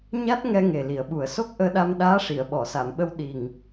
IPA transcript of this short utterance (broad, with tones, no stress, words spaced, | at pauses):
ɲa˦˥t̚ŋɛ˧ ŋe˨˩li˨˩˨ə̯ɓu˨˩ə̯ so˦˥k̚ʔəː˧ɗa˧mɗaː˧˥ ʂi˨˩˨ə̯ɓɔ˨˩˨sa˨˩˨mɓə˧w ɗi˨˩ŋ